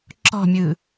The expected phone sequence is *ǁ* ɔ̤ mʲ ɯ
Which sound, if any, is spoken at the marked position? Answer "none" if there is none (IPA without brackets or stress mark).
ǁ